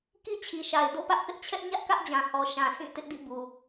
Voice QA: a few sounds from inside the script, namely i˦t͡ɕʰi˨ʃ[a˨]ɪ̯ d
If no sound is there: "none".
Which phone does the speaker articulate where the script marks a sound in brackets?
a˨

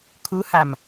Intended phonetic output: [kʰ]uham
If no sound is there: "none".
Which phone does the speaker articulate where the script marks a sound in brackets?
kʰ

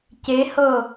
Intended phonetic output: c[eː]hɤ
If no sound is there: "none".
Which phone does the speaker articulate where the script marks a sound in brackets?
e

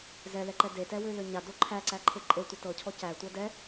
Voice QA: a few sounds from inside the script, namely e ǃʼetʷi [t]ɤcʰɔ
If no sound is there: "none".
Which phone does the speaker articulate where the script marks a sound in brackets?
t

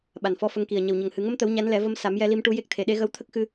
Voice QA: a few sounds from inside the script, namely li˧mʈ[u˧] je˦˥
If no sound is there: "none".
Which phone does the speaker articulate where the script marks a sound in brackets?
u˧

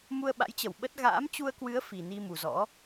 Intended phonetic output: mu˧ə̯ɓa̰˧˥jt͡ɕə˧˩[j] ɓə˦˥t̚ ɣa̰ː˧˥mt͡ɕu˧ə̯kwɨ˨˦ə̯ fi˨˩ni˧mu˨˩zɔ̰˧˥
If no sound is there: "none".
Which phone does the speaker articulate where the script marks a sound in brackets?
w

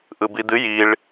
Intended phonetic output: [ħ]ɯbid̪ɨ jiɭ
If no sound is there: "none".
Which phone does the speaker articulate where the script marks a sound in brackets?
ʔ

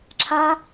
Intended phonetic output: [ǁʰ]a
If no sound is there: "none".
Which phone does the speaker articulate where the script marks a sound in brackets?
ǁʰ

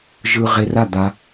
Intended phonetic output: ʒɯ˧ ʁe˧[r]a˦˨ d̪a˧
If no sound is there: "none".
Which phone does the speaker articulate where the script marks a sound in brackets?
r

